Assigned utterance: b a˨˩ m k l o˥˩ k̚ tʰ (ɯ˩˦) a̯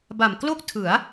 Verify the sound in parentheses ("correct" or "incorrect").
correct